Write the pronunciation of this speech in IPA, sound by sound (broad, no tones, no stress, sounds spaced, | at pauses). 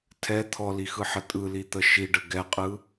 tʰ ɛ t̪ʰ ɔ l i x ɯ ħ ə tʼ ɯ l i t̪ ə ʃ i ɖ ə ɡ ɛ qʼ ɯ